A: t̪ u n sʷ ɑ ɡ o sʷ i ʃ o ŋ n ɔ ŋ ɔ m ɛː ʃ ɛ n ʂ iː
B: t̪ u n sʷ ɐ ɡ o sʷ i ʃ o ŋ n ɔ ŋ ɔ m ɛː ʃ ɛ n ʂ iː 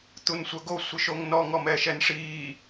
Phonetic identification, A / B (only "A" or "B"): B